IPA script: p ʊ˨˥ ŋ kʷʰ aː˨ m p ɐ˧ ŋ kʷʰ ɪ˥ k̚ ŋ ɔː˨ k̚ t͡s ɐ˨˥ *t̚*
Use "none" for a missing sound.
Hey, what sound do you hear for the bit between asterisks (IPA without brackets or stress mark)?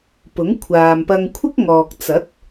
t̚